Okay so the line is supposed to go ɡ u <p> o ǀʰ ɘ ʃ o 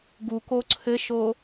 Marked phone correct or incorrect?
incorrect